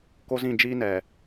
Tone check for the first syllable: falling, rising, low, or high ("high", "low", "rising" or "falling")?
high